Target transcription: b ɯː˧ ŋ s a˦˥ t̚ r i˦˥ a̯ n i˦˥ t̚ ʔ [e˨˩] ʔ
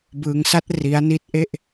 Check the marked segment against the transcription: incorrect: e˥˩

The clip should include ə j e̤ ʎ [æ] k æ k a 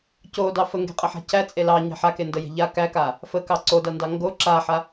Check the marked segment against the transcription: incorrect: a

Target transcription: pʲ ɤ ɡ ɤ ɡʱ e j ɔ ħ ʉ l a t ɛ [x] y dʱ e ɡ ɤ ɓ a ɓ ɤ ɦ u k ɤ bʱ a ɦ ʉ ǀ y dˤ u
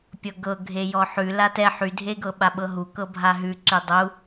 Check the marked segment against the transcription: incorrect: ħ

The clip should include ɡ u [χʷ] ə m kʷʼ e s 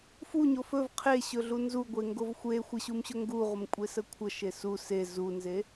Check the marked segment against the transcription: incorrect: ʁʷ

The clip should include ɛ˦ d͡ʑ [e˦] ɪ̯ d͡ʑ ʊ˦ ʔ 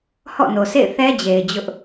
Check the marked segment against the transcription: incorrect: e˨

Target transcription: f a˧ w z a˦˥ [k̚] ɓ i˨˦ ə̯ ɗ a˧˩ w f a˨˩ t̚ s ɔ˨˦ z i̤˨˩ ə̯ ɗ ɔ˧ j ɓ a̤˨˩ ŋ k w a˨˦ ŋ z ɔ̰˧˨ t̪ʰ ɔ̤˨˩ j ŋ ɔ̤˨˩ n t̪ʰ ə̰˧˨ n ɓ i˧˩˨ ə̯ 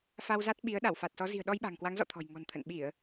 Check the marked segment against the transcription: incorrect: t̚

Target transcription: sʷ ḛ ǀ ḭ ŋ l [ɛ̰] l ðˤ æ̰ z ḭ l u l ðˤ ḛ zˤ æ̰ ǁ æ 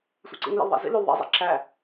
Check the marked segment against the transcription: incorrect: ḛ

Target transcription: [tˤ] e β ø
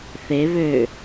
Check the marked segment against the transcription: incorrect: θ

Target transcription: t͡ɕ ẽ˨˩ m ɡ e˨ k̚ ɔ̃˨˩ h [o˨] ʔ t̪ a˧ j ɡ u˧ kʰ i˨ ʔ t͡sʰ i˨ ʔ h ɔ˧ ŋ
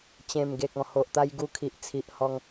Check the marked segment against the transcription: correct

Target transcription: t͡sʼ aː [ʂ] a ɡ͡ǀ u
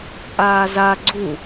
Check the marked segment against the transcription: incorrect: z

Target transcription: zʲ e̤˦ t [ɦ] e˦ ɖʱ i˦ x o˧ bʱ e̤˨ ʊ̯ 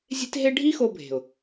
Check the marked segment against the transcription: correct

